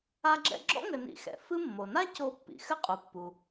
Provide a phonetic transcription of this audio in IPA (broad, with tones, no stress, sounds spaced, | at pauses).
a˦ ɡ͡ǁ ɛ̰˦ ɡ͡ǁ ɔ̰˥ ŋ ɘ˨ n ḭ˨ x ɛ̰˩ f ɨ˦ mː o˩ n a˥ c o˨ pː ḭ˩ x ɘ˥ qʼ u˩ pː u˩